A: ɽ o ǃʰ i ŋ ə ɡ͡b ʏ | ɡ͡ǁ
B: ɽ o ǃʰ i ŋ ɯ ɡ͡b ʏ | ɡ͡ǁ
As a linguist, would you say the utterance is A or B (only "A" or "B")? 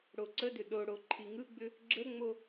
B